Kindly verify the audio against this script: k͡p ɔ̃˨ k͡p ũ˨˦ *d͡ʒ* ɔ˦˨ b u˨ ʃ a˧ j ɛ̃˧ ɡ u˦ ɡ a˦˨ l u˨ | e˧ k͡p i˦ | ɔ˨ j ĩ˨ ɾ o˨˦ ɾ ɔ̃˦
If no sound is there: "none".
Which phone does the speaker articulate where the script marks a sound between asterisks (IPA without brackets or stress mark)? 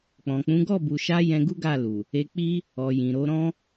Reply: ɡ